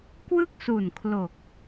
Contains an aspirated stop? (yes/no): yes